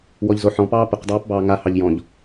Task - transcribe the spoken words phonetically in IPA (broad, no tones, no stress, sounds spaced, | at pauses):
w ɔ ʎ z o ħ ɔ̃ p ɑː p ə q dˤ ɑː p b ɑː ŋ a h ɑ ʎ j ɔ̃ ʎ